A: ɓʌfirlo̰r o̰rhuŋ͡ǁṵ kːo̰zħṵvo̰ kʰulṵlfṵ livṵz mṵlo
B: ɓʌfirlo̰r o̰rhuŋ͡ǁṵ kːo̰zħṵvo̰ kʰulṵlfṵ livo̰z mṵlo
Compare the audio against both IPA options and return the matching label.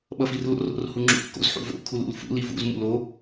A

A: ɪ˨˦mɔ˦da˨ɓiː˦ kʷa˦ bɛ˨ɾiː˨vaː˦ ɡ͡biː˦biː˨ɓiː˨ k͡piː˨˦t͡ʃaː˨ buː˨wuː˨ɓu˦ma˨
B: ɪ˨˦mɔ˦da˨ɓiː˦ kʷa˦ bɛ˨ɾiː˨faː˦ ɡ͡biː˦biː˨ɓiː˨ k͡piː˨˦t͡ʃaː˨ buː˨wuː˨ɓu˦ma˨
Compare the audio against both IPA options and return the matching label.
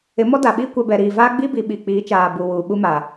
A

